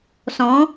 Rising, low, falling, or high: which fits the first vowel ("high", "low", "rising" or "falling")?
rising